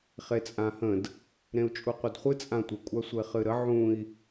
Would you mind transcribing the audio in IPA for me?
χ e t͡sʼ ã h ə̃ d | ɾ ẽ u̯ t͡ʃʼ u qʷ ɘ d χʷ ɨ t͡sʼ ã tʷ ɘ kʷʼ a sʷ e χ ɨ ɾ ə ʕ ũ i̯

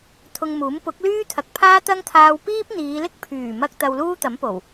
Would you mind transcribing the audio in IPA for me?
t̪ʰ ʊ˧ ŋ m uː˨˥ m p ʊ˨˥ k̚ l yː˥ t̪ʰ ɐ˨ k̚ pʰ aː˥ t̪ ɐ˥ ŋ t̪ʰ aː˧ w p iː˥ p̚ n̪ iː˨˧ l ɪ˥ k̚ pʰ yː˨˩ m ɐ˧ k̚ t̪ ɐ˧ w l uː˥ t̪ ɐ˨˥ m p o˨˩ w

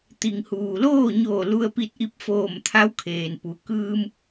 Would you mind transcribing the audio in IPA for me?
t̪ i˩ ŋ h uː˩ l oː˥˨ ɲ oː˧˩ l u˧ ə̯ p i˧ t̚ ʔ i˧˥ p̚ f oː˧˩ m t̪ʰ a˧˥ w kʰ eː˩ n p u˩ k ɯː˧ m

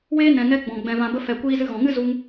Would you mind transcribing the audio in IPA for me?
w eː˦ n ɛ̃˨ ŋ ɛ˧ ɡ͡b ɔ̃˨ ɡ͡b ɛ̃˨ v ã˨ b ə˧ f ɛ˨ kʷ iː˧ z ɨ˧ ɣ ɔ̃˨ ŋ ɨ˦ z u˧ ŋ

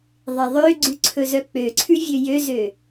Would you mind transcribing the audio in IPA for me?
ðˤ e ðˤ ø ɡ͡ǀ ʉ ǀʰ ɵ z œ k͡p ø ǀʰ ʉ vʲ ø j ø z ø

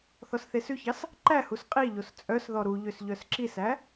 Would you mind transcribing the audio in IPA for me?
θ ɔ s θ e s ʉ ç ɑ s | ǃ æ h u s qʼ i ʎ o s t͡sʼ œ s ð ɔ ɾ u ʎ ø s ʎ œ s ǁ i s æ

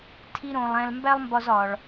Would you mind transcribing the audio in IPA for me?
tʰ i˥ ɾ õ˧ lˠ æ̃˧ l m b æ˥ lˠ m b ɒ˧ z ɒ˩ ɭ

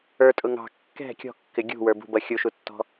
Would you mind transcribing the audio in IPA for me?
ə˞ tʼ ʊ ŋ ɑ̤ kː ɛ̤ kʲ ɔ̤ kː ɪ ɡʲ ṳ w ə˞ b ṳ b ʌ xʲ u ʃ u tː ɔ̤

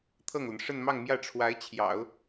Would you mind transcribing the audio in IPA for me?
t̪ʰ ɤ˥˩ ŋ l ə˩ n ʂ ə˥˧ n m ɑ˥˧ ŋ m j ä˥˩ ʈ͡ʂʰ w a˧˥ ɪ̯ t͡ɕʰ j ɑ̰˨˩˦ ʊ̯

